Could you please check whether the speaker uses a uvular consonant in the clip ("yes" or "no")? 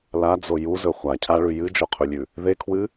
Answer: yes